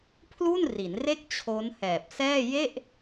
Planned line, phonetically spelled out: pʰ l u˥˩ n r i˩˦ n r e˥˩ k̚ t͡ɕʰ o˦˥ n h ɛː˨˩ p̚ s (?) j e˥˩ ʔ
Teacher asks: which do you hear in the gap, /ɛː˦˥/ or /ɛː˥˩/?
ɛː˥˩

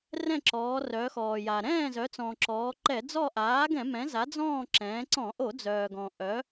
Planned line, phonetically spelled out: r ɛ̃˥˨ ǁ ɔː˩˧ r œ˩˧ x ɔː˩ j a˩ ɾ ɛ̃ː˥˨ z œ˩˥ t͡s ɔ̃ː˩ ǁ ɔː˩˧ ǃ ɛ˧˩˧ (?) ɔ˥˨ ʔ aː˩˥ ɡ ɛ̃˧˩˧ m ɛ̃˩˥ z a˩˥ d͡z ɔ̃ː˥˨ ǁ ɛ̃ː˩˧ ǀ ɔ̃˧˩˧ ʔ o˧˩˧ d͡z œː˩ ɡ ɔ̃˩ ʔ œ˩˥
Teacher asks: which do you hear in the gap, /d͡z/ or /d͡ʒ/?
d͡z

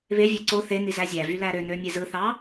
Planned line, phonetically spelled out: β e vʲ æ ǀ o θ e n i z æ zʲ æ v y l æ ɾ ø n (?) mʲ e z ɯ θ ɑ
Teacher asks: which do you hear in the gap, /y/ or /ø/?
ø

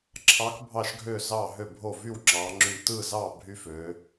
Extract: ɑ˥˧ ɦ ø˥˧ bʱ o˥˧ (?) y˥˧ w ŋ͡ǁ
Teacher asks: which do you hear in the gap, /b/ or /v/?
v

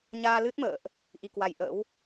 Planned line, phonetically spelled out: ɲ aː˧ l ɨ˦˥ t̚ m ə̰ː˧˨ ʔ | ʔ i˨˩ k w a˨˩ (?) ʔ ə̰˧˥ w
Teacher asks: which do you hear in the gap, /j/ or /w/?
j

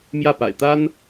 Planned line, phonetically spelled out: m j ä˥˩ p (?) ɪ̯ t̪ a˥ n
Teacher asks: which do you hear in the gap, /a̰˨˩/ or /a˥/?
a̰˨˩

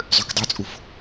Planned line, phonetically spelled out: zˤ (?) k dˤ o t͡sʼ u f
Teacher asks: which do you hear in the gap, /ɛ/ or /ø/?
ø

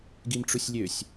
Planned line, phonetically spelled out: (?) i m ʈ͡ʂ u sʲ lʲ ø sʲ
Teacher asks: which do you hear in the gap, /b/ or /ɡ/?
ɡ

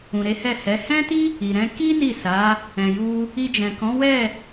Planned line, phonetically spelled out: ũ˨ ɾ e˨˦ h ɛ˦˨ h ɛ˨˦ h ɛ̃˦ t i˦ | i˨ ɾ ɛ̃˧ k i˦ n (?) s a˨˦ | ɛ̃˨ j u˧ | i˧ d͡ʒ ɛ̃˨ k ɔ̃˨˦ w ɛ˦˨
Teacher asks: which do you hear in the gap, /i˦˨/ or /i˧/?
i˦˨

